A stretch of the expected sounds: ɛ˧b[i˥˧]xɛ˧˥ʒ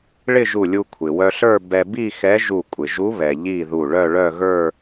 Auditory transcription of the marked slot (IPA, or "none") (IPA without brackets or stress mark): i˥˧